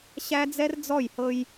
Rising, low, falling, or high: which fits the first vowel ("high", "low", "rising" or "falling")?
high